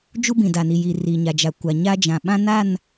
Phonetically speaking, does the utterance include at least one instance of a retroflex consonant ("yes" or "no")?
no